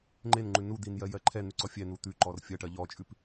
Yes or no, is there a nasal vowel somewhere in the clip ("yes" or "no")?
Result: no